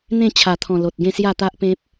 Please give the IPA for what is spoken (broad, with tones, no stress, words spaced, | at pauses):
n̪ẽ˥˧t͡ɕʰa˨˩t̪ʰɔ̃˨˩ lo˨t̚ɡẽ˥˧ sja˥˧t̪a˦ʔpẽ˦p̚